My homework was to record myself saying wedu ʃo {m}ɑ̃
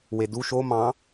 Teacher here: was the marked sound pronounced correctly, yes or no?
yes